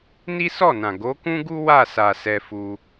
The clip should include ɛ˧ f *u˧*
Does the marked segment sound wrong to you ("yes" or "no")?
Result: no